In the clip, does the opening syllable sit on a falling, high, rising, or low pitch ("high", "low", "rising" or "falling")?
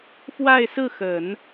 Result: falling